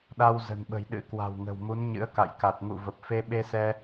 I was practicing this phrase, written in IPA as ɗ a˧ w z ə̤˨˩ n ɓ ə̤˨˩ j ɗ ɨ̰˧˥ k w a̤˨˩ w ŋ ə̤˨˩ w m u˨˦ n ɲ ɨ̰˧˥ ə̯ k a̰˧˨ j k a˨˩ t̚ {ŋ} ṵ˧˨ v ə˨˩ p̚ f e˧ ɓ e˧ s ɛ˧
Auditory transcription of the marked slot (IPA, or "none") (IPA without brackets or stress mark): ŋ